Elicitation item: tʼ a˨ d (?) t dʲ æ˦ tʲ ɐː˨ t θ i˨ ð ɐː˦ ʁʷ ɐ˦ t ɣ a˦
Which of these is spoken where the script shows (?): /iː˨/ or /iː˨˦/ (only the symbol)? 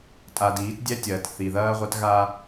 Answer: iː˨˦